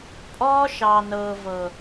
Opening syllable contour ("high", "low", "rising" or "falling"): high